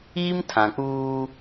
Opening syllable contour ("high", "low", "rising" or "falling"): high